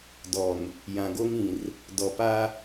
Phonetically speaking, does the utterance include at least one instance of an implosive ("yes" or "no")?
no